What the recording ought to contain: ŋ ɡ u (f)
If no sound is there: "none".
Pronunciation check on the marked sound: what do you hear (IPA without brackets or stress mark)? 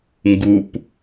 p